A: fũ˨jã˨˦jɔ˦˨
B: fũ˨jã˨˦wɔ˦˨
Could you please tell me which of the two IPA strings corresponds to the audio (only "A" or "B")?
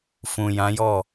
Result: A